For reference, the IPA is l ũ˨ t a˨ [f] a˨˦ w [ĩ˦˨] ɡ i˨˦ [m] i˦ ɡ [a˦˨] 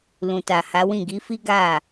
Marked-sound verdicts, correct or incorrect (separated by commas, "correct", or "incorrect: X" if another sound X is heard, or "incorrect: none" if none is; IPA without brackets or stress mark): incorrect: h, correct, incorrect: f, correct